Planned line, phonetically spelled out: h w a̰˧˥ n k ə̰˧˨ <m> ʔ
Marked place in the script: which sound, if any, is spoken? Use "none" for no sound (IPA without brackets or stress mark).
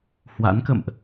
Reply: m